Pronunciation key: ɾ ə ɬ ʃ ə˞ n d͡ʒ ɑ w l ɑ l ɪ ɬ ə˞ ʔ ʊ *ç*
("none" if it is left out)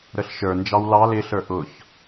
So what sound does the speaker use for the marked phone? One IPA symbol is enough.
ç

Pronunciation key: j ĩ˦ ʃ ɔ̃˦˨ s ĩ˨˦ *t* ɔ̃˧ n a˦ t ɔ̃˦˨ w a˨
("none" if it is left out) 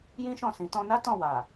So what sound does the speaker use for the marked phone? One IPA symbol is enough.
t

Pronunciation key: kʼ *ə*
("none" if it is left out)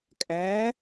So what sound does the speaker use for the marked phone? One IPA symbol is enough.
æ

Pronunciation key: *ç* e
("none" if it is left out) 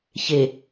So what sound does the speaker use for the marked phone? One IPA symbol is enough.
ç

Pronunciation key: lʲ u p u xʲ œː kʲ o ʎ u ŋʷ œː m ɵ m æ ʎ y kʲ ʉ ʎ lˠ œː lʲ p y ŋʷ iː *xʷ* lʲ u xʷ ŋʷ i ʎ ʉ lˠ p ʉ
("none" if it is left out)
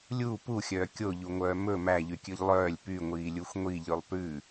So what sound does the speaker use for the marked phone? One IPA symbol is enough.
none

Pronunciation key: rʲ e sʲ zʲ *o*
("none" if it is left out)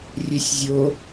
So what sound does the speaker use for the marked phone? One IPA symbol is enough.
o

